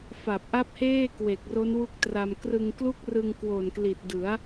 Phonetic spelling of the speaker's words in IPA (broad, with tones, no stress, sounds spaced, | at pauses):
f a˨˩ p̚ ʔ a˦˥ p̚ h eː˥˩ k w e˨˩ k̚ r o˦˥ n w u˦˥ k̚ t r a˧ m k r ɯ˧ ŋ k l u˥˩ k̚ r ɯ˧ ŋ k w o˨˩ n k l i˨˩ t̚ d ɯ˩˦ a̯